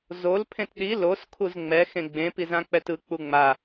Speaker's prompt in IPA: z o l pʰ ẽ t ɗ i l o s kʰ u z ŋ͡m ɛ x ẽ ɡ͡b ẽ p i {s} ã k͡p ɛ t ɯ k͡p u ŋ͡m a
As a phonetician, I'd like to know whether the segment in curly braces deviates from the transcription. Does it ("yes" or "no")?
yes